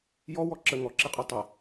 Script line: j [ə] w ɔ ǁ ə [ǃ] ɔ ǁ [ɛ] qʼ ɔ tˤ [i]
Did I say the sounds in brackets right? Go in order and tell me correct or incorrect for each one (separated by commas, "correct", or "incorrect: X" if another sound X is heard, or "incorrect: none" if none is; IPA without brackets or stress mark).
incorrect: ɔ, incorrect: ŋ, incorrect: e, incorrect: e